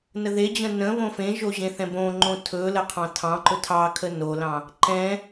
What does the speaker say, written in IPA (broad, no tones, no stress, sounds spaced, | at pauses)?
n ə ð e d͡ʑ ə̃ n ə̃ β õ f ẽ ʒ o ʑ ẽ θ ɛ̃ b õ ŋ͡ǃ õ tʰ ɵ l ə qʰ ɑ̃ tʰ ɑ̃ ǃ ɵ tʰ ɑ kʰ ə n o l ɑ̃ | ǃ ɛ̃